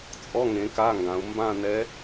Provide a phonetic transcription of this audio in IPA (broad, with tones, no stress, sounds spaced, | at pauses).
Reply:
t͡sʼ ɔ˧˥˧ ŋ ẽ˩˧ k a˧˥˧ ŋ ɡ ã˩˧ u̯ m b ã˥˧ n ɛ˧˥